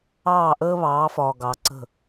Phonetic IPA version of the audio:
ɑː˦˨ ʔ əː˦ β ɑː˨˦ f ɒː˨ ɡ ɑ˨˦ ǀ ə̤˦˨

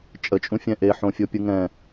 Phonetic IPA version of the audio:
t͡ʃʼ ə t͡ʃʼ ũ fʲ ɛ̃ ʔ e ħ õ fʲ o pʲ ɯ ŋ ɛ̃

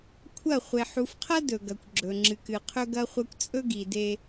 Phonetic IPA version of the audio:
kʷʰ ɐ˦˨ χʷ e˨ ħ u˨ f qʰ ɐ˦ d ɵ˨ ɡ ɐ˨ kʷ ɡ͡ǁ ɵ˨ ŋ͡ǁ ɨ˨ k ɨ˨ qʰ ɵ˦ ɡ ɐ˦ χʷ ɐ˦ kʷ t͡sʼ ɵ˦ ɡ i˨ d e˦

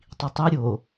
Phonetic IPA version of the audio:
tˤ i tˤ i ɾʲ o

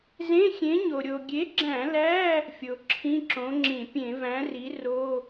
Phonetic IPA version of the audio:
z ẽ˧˥˧ xʲ ẽ˨˥ ɲ o˩ ɾʲ o˩ ɡʲ e˨˥ ɡ͡ǁ æ̃˧˩˧ l æ˧˥˧ | fʲ o˩ ǁʰ ĩ˧˥˧ ǁ õ˨˥ ŋ͡ǁ ĩ˧˩˧ pʲ ẽ˧˩˧ v æ̃˨˥ r i˨˥ r o˧˥˧

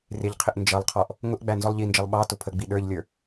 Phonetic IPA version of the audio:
r ɪ ʎ qʰ ɪ ʔ n d͡ʒ ʌ lˠ qʰ ɔ ʔ | ŋ ʊ ʔ ɡ͡b æ n z ɔ lˠ ʎ i n d͡ʒ ʌ lˠ ɓ ɑ t ʊ pʰ ə ɡ͡b i ɗ ə˞ ʎ lʲ ə˞

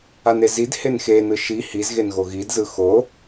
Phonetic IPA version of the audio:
a n e z i d h e n x e n ɯ ʃ i h i z ɣ e n ɣ o ɣ i d z ɯ x o

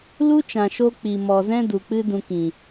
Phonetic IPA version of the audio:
l u˦ t͡ʃ ã˨ ʃ o˧ k͡p i˨ m ɔ˨ z ɛ̃˦ d u˨ k͡p ɨ˦ d ũ˧ k ĩ˨

